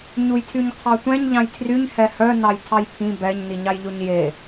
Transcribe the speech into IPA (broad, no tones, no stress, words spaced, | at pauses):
ɲujtʰyɲqʰɑtʷɛ̃ɲ ʎɑ̃jtʰryɲ hɛhœ nɑjtʰɑjpʰĩ bɛɲ niɲɑjʎoɲje